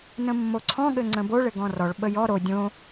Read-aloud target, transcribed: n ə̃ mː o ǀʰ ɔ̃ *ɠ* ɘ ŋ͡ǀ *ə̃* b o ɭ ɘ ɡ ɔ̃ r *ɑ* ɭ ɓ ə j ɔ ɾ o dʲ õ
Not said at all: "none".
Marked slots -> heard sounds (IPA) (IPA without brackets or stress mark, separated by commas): ɠ, ə̃, ɔ